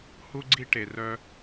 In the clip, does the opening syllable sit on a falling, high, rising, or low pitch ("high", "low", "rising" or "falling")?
high